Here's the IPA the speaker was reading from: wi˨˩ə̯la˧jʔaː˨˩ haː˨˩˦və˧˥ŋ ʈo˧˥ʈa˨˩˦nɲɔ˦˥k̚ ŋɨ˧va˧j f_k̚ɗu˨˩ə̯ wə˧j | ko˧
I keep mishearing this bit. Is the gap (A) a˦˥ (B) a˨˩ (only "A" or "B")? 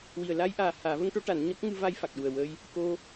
B